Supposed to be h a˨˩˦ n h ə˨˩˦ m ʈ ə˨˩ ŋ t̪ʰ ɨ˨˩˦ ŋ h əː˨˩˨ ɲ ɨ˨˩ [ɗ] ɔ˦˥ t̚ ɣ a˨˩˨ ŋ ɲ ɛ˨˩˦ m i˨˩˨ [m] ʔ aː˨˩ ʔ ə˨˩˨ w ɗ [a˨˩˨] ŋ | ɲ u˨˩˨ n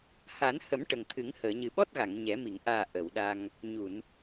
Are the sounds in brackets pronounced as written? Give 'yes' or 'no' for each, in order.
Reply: no, no, no

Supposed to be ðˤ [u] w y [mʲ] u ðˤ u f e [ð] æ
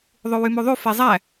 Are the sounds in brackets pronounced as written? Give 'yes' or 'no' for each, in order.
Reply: yes, no, no

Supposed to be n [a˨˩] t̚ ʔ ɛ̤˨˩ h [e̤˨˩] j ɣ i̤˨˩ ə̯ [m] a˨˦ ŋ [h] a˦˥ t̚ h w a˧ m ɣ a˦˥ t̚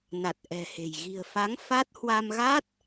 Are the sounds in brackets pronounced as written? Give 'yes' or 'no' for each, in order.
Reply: yes, yes, no, no

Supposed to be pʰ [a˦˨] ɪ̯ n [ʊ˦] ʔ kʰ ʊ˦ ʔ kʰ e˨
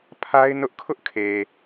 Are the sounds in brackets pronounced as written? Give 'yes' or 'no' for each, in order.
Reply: no, yes

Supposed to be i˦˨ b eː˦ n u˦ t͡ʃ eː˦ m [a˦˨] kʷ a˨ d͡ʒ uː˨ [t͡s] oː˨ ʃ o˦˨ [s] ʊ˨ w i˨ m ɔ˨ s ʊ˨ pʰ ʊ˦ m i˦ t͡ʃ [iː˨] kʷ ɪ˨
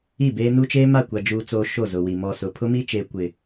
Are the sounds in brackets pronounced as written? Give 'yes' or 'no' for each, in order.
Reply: yes, yes, no, no

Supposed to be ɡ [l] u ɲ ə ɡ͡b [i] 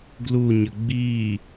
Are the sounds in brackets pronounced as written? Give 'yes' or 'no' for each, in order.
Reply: yes, yes

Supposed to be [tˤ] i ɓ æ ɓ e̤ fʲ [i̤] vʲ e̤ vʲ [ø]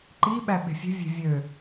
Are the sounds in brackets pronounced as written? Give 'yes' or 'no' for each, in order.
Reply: no, no, yes

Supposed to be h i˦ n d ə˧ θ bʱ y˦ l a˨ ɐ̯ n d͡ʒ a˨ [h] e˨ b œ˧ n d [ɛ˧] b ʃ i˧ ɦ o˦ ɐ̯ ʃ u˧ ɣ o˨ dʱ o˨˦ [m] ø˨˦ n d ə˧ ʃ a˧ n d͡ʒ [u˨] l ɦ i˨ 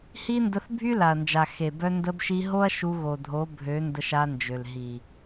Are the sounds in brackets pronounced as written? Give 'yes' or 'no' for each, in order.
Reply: no, no, no, no

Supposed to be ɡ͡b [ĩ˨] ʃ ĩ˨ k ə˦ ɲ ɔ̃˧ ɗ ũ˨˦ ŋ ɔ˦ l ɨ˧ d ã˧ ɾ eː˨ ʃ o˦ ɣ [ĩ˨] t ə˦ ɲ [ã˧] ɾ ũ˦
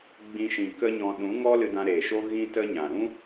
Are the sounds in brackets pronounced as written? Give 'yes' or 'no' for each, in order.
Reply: no, no, no

